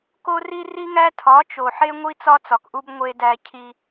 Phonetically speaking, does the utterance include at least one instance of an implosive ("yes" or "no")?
no